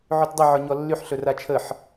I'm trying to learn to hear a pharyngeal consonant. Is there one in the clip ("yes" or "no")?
yes